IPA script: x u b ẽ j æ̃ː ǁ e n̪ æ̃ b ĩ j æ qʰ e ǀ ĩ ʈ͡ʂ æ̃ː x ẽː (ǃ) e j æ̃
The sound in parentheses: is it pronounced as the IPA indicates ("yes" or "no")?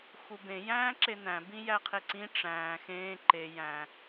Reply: yes